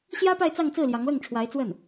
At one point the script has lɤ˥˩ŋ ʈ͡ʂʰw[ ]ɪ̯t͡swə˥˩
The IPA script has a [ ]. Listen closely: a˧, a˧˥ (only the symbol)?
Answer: a˧˥